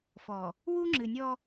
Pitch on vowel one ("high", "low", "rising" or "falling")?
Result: low